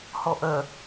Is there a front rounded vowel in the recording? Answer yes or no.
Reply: yes